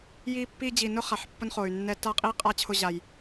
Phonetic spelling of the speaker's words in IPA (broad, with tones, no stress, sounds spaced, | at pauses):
j i˧ pː i˧ d͡ʑ i˨ n ʊ˦ χ a˨ ħ pː ʊ˦ n χ o˨ y̯ nː ɛ˧ t a˦ qʼ i˦ qʼ a˦ t͡ɕʰ ʊ˧ ʑ a˨ j